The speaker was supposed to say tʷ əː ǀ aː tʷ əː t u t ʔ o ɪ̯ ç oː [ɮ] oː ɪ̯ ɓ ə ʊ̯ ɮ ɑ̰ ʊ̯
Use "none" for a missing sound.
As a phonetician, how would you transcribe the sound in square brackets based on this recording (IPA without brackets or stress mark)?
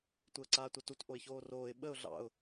r